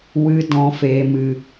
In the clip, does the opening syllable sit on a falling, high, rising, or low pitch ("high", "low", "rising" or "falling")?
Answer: high